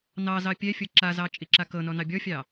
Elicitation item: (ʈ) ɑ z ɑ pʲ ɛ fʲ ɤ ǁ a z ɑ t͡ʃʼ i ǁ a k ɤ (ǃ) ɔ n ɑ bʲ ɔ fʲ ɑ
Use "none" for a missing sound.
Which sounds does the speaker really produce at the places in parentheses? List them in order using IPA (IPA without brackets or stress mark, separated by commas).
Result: n, n